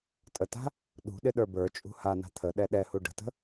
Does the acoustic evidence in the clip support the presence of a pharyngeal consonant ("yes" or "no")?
no